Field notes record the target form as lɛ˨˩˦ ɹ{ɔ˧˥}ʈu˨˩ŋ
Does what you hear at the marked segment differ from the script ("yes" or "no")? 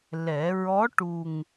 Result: no